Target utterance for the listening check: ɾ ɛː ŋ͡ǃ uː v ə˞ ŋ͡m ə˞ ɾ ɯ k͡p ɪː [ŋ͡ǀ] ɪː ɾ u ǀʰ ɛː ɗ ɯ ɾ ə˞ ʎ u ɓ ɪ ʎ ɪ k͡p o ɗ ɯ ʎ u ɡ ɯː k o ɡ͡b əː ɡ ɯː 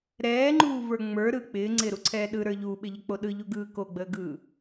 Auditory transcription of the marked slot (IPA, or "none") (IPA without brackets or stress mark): ŋ͡ǀ